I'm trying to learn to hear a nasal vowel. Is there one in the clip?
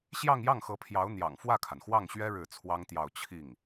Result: no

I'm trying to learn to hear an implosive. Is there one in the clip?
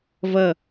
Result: no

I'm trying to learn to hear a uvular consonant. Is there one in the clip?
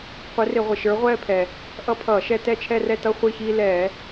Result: yes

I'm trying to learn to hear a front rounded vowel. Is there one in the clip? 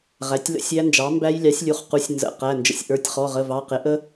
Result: no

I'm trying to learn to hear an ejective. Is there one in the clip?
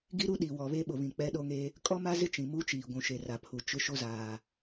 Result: yes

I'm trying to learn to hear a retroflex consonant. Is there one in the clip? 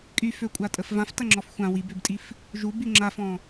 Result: no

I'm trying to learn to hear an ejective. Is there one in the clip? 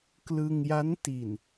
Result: no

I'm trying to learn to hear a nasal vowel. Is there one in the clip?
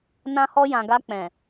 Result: yes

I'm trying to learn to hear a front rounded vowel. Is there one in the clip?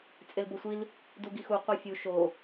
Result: no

